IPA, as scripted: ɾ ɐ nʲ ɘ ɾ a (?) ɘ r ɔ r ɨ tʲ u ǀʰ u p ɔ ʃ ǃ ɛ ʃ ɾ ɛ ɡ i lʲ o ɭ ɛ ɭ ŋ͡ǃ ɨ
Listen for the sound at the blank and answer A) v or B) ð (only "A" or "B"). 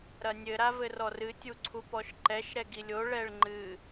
A